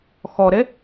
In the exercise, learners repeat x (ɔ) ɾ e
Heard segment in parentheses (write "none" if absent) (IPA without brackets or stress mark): ɔ